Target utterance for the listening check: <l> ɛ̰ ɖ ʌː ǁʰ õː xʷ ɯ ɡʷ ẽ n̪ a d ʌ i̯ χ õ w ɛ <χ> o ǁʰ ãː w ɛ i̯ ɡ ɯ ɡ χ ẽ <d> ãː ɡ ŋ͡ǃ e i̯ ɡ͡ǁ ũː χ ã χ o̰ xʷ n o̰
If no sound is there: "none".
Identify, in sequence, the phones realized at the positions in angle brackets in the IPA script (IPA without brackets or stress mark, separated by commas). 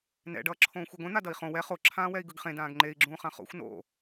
n, χ, d